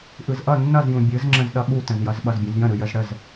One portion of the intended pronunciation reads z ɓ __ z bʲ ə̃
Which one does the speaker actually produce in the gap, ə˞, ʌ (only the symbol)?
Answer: ʌ